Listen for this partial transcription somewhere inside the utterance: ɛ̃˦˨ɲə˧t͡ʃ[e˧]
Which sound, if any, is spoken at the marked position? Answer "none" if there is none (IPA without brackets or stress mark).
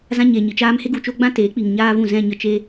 e˧